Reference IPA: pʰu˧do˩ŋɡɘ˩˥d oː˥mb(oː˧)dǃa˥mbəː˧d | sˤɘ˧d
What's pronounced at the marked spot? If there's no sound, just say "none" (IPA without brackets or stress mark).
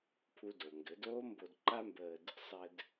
o˧